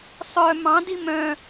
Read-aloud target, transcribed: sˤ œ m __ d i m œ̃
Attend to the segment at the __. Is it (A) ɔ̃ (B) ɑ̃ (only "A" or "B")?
B